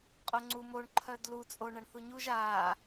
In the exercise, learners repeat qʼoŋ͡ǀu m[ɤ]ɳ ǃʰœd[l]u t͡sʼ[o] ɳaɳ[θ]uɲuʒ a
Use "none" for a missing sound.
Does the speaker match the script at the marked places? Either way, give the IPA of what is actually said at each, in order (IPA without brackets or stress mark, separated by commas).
o, l, o, θ